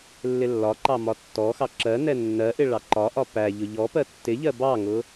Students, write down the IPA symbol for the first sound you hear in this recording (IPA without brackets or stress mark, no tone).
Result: lː